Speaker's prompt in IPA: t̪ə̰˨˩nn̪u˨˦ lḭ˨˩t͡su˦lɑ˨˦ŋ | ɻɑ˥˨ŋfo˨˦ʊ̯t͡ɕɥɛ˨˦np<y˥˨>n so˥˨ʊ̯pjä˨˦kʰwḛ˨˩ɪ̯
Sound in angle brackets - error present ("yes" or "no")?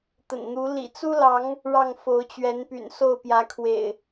yes